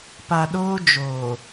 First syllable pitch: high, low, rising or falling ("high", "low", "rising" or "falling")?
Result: low